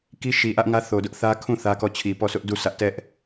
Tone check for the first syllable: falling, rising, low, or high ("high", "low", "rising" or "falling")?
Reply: high